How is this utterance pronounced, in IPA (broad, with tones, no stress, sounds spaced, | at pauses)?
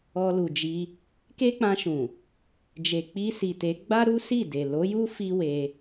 ɔ˧ l u˨ d͡ʒ i˧ | k e˦ k͡p ã˧ ʃ ũ˨ | d͡ʒ e˨ k͡p i˧ s i˨ t e˨˦ ɡ͡b a˦ ɾ u˦ s i˦˨ d e˨ l o˨˦ j u˦ f i˦ w e˧